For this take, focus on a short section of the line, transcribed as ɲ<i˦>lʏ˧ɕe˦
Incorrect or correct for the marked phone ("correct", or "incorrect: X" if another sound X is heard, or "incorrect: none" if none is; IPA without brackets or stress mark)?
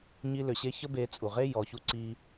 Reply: correct